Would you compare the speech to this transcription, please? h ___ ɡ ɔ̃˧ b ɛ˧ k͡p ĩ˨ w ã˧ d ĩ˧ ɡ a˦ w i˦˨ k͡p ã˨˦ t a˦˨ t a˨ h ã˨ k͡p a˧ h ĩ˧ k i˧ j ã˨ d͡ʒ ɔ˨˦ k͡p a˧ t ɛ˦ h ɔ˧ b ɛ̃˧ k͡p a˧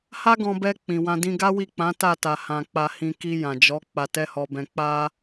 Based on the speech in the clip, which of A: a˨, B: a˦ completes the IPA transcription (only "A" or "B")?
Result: B